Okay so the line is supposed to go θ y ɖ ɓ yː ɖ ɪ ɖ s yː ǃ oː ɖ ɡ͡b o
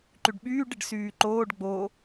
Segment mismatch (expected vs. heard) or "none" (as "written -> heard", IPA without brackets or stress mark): θ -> ǃ